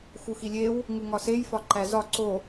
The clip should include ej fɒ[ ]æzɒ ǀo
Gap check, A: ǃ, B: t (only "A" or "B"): A